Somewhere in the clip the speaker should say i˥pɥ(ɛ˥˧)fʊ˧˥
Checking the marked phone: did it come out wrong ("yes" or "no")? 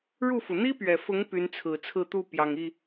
yes